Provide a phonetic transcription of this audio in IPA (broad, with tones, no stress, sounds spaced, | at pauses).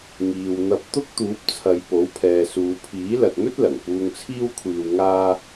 ŋ iː˨ w n̪ ɐ˧ p̚ t̪ ʊ˥ k̚ t̪ uː˨˥ p̚ t͡sʰ ɐ˨˧ j p o˨˥ w pʰ ɛː˨ s uː˨˧ pʰ iː˨˥ l ɐ˨ t̚ n̪ ɵ˥ t̚ l ɐ˨˩ ŋ p uː˧ ŋ t͡sʰ iː˥ w kʷʰ iː˧ w ŋ aː˥